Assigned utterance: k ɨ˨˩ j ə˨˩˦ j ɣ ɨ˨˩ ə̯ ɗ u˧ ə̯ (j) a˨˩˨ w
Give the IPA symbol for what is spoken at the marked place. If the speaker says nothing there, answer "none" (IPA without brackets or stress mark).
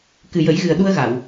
ɣ